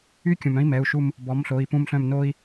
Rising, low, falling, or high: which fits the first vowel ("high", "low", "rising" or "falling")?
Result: high